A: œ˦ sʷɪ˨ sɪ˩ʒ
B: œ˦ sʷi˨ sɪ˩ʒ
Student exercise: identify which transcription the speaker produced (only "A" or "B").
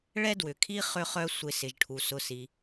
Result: A